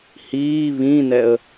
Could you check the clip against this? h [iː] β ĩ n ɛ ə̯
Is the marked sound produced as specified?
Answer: yes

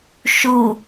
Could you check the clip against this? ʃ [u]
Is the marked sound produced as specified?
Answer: yes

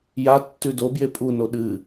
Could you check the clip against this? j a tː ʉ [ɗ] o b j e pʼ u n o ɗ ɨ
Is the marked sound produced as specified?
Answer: no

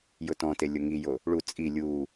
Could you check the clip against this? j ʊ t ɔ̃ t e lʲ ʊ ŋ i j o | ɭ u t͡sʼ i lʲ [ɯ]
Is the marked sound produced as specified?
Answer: no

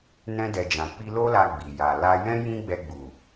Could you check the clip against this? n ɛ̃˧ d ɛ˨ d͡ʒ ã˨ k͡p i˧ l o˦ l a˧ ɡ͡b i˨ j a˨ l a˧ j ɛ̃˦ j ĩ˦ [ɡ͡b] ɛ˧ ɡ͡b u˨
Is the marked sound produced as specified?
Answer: yes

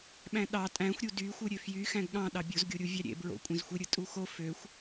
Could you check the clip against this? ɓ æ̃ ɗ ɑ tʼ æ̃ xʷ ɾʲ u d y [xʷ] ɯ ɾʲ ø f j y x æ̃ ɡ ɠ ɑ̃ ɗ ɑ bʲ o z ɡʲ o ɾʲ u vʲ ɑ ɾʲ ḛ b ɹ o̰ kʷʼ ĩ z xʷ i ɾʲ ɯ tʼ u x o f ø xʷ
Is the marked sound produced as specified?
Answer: yes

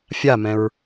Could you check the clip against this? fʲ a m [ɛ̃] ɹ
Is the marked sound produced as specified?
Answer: yes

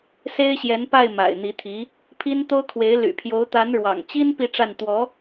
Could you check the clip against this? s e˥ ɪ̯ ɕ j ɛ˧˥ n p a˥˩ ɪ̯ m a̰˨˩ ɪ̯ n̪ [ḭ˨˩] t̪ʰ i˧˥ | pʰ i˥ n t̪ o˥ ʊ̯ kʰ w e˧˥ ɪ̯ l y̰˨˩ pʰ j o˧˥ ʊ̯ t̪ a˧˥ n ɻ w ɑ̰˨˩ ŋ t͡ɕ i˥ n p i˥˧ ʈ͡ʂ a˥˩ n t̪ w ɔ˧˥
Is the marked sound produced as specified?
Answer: no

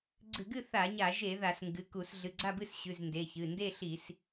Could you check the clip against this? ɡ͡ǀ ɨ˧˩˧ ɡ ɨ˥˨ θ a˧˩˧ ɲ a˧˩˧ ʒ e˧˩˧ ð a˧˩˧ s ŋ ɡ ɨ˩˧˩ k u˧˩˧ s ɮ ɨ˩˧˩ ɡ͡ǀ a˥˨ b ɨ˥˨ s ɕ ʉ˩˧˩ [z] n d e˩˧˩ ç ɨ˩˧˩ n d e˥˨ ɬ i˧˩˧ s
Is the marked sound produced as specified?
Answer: yes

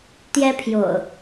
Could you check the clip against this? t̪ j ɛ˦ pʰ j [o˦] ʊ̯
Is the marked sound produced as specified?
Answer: no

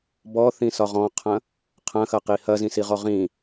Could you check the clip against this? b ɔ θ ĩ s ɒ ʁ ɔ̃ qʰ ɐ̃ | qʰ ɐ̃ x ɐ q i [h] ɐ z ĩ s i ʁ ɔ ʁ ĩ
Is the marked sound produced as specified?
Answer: yes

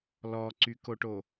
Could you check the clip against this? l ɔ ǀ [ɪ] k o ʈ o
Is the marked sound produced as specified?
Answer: no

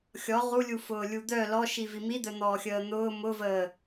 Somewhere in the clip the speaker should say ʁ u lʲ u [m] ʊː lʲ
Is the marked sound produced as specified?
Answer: no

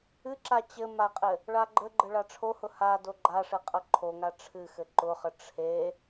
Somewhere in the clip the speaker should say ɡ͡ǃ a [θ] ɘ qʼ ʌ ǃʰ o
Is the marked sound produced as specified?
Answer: no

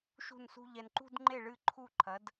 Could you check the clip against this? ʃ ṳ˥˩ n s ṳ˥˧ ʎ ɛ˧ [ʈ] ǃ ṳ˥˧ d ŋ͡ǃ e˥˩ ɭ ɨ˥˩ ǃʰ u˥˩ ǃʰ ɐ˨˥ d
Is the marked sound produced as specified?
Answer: no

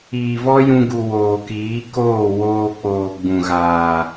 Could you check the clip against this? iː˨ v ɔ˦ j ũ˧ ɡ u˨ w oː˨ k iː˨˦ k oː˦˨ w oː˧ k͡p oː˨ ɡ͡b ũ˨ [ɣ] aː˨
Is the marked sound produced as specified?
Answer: yes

